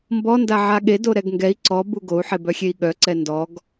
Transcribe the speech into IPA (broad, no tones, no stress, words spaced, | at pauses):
mbɔ ndaʕaɠe doɾɛɡŋɡɛi̯ ǀɔ buɡou̯ ħebœxʲei̯ɠœ ǀɛndɔɡ